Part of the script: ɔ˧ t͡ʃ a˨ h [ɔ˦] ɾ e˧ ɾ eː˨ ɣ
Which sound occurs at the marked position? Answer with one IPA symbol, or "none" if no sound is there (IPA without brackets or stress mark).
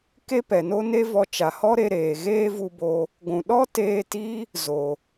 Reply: ɔ˦